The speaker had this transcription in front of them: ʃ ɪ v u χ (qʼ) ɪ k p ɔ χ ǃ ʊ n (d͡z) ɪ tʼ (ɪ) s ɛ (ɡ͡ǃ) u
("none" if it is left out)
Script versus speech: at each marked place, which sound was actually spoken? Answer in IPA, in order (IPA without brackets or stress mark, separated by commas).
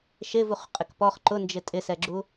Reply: qʼ, d͡ʒ, ɪ, ɡ͡ǁ